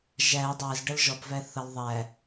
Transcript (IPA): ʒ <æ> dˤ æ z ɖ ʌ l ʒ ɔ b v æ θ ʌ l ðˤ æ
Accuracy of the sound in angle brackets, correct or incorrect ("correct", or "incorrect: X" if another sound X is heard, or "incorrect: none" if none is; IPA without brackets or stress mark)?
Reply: correct